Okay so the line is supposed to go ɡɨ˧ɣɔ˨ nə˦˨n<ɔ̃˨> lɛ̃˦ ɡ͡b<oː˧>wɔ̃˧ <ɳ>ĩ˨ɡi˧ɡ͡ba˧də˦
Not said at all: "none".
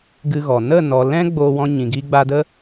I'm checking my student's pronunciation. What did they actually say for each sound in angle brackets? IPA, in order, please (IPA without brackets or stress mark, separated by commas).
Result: ɔ˨, o˧, ɲ